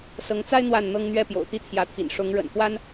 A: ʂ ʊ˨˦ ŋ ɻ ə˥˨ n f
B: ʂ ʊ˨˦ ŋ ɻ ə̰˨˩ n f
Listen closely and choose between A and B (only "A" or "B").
B